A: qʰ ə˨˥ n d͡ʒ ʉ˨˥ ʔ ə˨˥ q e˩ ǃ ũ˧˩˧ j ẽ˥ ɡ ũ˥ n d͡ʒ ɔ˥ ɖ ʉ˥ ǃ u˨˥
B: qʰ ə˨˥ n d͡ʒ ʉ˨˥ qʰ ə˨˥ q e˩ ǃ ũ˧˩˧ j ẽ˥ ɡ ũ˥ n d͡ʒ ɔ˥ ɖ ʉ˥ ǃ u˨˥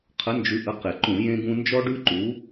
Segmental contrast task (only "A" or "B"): A